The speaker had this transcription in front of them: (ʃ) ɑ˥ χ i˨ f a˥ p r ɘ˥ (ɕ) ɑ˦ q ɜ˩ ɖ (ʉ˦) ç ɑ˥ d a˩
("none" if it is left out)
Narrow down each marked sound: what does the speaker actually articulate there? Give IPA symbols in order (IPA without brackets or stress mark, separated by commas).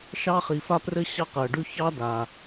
ʃ, ɕ, ʉ˦